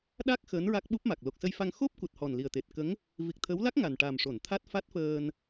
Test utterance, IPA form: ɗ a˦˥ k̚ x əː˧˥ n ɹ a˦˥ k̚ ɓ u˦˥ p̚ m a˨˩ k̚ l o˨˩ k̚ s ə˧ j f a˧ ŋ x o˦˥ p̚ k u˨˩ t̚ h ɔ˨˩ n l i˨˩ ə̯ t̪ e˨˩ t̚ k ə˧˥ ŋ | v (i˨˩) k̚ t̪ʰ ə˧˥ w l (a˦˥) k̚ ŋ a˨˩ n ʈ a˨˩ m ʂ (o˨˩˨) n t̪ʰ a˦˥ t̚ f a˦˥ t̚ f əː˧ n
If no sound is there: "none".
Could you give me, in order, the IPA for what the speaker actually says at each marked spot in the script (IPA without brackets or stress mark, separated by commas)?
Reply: i˨˩, a˦˥, o˨˩˨